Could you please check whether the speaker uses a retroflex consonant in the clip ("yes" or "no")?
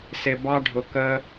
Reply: yes